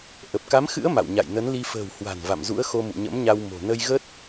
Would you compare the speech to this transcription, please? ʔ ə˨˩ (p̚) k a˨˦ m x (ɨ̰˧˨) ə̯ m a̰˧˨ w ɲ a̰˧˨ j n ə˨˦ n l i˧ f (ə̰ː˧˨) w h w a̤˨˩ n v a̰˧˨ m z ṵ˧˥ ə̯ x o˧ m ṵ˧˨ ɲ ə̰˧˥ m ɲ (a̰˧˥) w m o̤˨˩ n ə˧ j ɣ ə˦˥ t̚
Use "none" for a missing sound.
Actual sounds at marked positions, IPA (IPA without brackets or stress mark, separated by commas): p̚, ɨ̰˧˥, ə̤ː˨˩, a˧